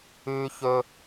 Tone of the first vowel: high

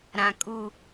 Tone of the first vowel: low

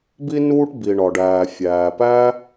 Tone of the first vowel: high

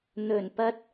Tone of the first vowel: low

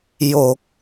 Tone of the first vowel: low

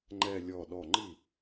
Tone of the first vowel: low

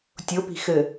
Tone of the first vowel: rising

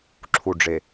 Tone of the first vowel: low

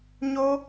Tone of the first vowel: high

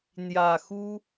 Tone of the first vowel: low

